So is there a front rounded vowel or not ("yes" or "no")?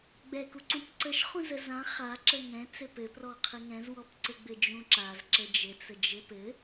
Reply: no